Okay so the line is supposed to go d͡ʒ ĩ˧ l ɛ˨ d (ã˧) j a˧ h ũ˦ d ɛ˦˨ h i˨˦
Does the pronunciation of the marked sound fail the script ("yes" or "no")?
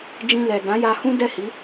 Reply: yes